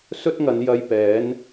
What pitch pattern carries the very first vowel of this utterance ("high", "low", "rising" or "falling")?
high